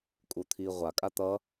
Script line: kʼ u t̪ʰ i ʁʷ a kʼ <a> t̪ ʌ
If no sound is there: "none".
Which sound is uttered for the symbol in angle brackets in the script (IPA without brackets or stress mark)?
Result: a